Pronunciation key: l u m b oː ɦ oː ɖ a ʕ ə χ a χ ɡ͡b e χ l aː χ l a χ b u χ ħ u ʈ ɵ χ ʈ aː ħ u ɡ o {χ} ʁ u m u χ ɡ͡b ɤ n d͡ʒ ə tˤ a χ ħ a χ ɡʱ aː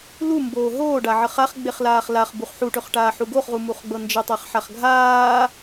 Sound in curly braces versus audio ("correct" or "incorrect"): correct